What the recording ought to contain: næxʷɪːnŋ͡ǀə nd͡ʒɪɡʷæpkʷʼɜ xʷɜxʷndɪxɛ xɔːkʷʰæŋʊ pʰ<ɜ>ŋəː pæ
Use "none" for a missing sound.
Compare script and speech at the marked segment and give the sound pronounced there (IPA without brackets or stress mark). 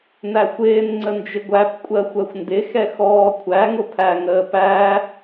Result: æ